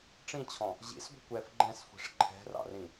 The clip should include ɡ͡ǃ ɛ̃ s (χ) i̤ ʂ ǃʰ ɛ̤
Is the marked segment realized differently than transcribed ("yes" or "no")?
yes